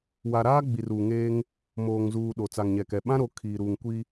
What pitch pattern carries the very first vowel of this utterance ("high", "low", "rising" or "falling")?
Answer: low